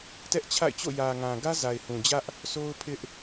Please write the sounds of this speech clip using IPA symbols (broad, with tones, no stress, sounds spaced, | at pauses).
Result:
t ɛ˦ ʔ t͡ɕʰ a̰˦˨ ɪ̯ t͡ɕ o̰˦˨ j ä˨ ŋ ã˨ ɡ ä˦ z a˨ ɪ̯ h ũ˨ d͡ʑ ä˦ ʔ | s o˦ ʊ̯ pʰ ɪ˦ ʔ